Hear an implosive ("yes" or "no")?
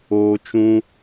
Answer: no